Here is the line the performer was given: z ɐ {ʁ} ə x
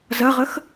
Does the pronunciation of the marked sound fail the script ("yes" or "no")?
no